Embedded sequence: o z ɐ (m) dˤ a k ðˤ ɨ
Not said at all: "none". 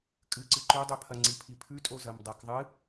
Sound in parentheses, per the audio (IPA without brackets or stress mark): m